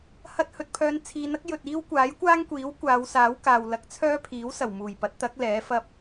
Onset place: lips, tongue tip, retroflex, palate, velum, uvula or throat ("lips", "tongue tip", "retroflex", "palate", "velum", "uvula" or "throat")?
throat